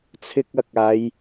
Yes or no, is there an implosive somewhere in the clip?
no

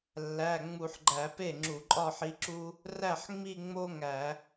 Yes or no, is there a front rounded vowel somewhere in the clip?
no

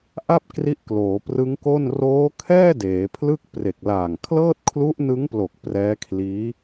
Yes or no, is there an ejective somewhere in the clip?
no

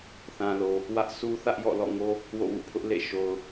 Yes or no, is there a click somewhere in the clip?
no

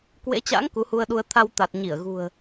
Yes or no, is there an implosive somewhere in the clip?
yes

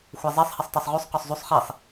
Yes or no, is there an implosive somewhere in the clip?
no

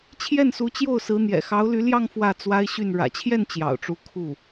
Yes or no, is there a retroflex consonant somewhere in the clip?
yes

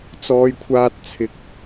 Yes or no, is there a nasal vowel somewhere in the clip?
no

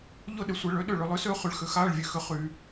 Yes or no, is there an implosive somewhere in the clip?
yes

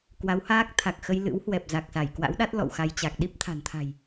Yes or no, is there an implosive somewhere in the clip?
yes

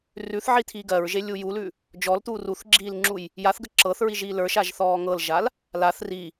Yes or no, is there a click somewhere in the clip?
yes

